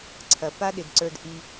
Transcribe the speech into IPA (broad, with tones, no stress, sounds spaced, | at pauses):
ǀʰ ɐ˨ p a˦ ɗ ɪ˨ d ǀ ə˞˧ d ʔ i˧